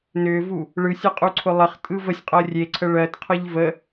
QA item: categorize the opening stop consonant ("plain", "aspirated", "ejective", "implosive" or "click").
ejective